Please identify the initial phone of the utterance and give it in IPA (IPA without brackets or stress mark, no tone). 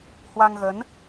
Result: h